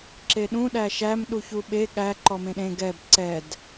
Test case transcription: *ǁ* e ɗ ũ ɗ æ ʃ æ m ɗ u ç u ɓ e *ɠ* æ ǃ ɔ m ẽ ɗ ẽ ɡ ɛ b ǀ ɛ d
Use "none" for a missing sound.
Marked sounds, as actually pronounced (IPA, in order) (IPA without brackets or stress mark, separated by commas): ǁ, ɠ